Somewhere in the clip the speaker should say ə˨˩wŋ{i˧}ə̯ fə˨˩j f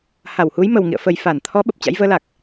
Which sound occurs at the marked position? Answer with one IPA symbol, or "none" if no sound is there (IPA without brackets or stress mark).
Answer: ḭ˧˨